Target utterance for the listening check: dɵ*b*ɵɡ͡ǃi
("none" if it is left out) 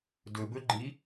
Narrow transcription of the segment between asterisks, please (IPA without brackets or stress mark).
b